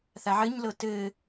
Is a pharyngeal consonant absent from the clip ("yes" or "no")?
no